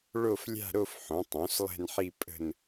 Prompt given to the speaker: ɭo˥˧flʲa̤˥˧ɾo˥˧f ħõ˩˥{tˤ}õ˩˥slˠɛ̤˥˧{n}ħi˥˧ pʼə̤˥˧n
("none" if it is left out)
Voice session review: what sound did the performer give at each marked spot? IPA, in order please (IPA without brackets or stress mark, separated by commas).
tˤ, n